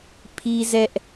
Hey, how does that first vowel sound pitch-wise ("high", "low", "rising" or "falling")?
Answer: high